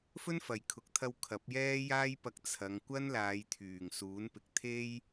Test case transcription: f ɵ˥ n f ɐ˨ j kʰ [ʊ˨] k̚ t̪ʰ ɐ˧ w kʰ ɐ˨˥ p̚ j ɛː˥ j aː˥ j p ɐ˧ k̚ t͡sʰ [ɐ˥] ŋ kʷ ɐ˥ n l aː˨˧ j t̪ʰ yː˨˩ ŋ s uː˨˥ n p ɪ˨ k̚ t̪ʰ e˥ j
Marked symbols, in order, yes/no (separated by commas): yes, no